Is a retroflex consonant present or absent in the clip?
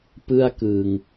absent